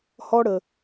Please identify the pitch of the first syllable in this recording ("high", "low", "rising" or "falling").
high